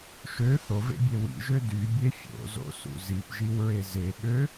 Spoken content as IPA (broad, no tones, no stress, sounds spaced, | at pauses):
ʃ ø θ o v ḛ bʲ e w ḭ ʒ ø d y bʲ e fʲ o̰ z o̰ s ṵ z i p ʒ i w ɹ e z e ɠ ø